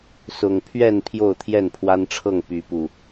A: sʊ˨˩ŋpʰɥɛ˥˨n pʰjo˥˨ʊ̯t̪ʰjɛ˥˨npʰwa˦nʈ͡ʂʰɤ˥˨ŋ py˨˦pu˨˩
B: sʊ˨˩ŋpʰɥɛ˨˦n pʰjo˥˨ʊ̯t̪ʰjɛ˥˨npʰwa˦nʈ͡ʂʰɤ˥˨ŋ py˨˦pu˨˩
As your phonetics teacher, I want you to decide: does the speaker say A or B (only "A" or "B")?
A